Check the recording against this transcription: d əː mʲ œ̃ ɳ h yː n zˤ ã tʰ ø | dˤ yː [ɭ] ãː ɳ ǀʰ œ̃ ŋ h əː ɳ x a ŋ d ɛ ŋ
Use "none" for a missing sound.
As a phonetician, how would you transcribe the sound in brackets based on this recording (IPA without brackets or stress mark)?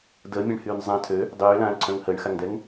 l